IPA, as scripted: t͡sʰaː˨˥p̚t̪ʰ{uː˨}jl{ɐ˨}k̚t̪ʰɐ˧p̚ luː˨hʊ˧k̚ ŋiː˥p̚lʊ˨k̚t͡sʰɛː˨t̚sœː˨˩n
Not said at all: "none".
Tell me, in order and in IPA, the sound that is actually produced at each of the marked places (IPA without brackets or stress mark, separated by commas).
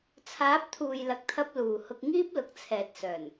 uː˨, ɐ˨